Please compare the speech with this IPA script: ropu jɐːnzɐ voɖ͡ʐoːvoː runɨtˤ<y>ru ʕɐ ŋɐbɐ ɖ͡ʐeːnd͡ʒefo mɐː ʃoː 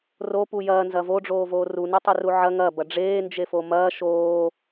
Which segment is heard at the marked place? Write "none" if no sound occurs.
ɨ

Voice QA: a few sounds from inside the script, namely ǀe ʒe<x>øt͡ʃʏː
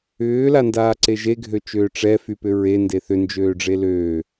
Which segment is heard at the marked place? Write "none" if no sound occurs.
ɡʱ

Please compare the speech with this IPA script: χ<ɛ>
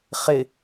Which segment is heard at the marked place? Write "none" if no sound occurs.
ɪ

